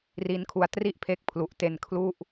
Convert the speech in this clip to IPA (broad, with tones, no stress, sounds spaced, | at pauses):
r i˦˥ n kʰ u˦˥ a̯ t r i˥˩ ʔ pʰ e˦˥ k̚ pʰ l u˨˩ ʔ t e˧ n kʰ l u˥˩ ʔ